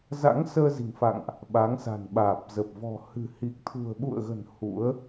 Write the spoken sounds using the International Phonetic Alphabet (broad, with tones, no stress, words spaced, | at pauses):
za̰˧˥ŋsəː˧zi̤˨˩ŋfa̰˧˨ŋʔ | ɓa˨˦ŋsa̤˨˩nɓaː˨˩p̚zə˨˩p̚ vɔ̤˨˩ hɨ̤˨˩hi˨˩k̚ t̪ʰṳ˨˩ə̯ɓṵ˧˨ə̯ɣə̤˨˩n hṵ˧˥ə̯